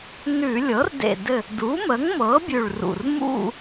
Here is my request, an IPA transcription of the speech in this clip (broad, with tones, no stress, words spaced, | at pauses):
nʉ˧˩˧ lʲɤ˩˥rdḛ˧˩dɘ˧˩ | du˩˥mə˩˥ŋmɤ˩˥ bʲʉ˧˩ɭrṵ˧˩r mṵ˥˧